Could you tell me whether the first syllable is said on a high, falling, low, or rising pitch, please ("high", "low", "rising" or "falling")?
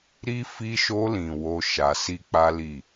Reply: high